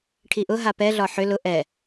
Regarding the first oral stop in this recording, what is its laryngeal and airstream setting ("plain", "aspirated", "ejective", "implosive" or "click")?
aspirated